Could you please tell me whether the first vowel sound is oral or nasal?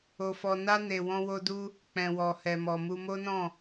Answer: oral